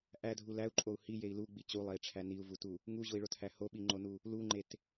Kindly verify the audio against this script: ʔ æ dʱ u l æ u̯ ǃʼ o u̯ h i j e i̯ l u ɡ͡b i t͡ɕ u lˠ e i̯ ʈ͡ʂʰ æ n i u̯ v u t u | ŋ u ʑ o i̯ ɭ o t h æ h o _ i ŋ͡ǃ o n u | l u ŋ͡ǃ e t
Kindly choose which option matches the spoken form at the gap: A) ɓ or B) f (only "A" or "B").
A